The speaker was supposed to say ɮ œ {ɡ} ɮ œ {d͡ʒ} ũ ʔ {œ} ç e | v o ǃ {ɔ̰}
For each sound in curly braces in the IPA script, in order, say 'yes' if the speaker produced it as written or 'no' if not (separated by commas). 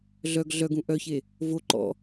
yes, no, yes, yes